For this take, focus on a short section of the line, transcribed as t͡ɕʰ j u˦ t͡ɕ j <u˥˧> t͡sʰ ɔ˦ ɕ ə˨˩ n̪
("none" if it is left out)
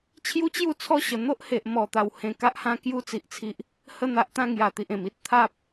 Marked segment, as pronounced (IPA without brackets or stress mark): u˥˧